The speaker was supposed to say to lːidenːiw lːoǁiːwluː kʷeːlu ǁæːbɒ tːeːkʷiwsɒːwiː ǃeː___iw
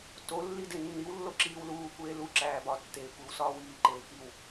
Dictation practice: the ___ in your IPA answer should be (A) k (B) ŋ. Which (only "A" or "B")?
A